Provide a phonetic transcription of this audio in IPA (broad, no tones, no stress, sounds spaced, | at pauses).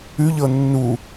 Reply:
ʉ ʎ ɤ nː u